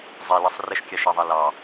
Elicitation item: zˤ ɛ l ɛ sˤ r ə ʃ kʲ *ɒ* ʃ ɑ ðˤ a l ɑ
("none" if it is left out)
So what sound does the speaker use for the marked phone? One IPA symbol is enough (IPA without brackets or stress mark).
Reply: ɑ